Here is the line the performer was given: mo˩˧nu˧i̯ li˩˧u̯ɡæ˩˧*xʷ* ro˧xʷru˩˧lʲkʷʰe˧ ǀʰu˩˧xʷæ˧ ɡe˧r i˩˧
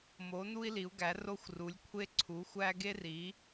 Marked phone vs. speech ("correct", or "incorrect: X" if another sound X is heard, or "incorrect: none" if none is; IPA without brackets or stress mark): incorrect: none